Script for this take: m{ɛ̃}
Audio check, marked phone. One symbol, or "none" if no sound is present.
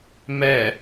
ɛ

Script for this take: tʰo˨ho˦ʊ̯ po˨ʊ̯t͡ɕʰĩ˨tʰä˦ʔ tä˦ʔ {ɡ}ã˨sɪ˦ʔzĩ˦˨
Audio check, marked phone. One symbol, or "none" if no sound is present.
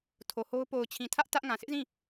ŋ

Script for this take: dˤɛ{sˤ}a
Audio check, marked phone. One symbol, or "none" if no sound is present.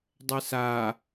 s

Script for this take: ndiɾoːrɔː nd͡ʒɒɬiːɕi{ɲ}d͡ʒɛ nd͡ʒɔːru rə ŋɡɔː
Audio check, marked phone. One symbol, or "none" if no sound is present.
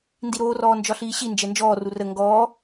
n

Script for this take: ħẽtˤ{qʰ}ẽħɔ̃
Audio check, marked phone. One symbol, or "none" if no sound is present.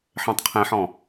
qʰ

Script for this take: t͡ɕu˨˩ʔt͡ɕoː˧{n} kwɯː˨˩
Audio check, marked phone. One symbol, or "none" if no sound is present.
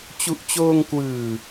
ŋ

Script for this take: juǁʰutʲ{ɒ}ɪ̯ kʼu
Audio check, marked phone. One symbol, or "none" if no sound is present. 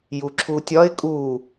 ɒ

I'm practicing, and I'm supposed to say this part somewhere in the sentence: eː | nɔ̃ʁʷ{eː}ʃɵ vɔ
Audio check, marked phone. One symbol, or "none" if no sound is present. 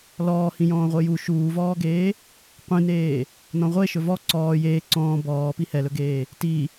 e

